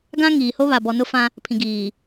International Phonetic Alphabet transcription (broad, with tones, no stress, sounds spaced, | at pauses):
ɡ ã˦ ŋ iː˨ h o˦ β a˨ b ɔ˨ n ʊ˦ f ã˦ | pʰ ĩ˨ ɡ iː˨